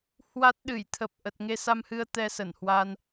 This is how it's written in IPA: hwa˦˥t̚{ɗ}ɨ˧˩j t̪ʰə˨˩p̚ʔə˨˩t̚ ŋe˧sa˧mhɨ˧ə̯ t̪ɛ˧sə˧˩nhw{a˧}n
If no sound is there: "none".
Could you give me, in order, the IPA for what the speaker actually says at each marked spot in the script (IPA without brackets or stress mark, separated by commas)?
ɗ, a˧